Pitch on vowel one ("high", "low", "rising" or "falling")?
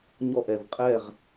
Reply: falling